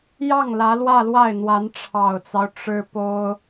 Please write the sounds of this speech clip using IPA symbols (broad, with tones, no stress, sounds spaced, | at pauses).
j ɑ˥˩ ŋ l ä˧˥ l w ä˥˧ l w a˥˩ ɪ̯ n̪ w a˧˥ n ʈ͡ʂʰ ɑ˨˩ ʊ̯ t͡s ɑ˦ ʊ̯ ʈ͡ʂ ɻ̩˥ p o˥ ʊ̯